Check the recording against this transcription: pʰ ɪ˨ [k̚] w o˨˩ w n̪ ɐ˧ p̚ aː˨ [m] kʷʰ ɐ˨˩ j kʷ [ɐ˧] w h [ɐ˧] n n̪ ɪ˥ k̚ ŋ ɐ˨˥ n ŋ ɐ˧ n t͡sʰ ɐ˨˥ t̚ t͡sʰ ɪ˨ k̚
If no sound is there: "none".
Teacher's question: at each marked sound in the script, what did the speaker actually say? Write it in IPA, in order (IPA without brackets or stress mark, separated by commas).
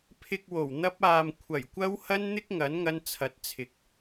k̚, m, ɐ˧, ɐ˧